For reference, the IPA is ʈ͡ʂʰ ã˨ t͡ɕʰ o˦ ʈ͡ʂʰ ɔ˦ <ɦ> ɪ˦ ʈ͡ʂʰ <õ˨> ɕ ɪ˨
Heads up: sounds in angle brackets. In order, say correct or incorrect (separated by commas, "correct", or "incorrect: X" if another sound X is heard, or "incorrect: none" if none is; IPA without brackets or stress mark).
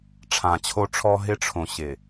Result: correct, correct